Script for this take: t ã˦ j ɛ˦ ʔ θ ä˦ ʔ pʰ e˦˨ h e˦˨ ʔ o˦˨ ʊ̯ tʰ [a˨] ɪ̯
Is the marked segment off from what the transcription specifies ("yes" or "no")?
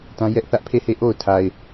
no